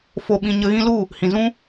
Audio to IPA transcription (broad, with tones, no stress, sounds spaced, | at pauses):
f o˧ ɓ ĩ˧ ɲ ə˧ ɣ ĩ˦ l u˦˨ | h ĩ˨ z ũ˦